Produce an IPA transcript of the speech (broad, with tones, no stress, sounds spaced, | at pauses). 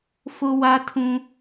f ʊ˦ w a˦ tʰ ũ˦